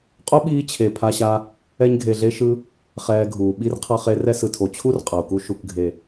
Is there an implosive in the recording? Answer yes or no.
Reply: yes